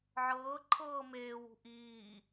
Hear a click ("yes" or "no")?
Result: yes